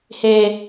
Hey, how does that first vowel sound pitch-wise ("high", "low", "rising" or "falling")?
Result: high